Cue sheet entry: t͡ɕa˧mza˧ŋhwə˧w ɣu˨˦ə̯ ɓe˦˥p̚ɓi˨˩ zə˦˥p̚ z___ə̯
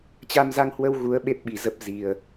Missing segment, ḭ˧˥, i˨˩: i˨˩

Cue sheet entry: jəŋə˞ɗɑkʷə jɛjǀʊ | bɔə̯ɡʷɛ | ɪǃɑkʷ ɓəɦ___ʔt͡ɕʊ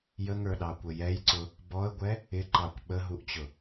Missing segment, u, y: u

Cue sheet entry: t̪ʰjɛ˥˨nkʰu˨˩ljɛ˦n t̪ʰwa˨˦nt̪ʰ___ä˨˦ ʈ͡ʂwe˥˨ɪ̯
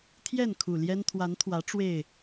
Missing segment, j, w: w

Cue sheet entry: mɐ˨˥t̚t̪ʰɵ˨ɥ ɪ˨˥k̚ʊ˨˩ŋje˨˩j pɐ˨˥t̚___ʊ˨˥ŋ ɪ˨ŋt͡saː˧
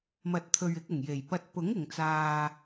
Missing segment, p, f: p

